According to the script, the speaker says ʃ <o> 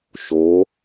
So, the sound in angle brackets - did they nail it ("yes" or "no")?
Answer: yes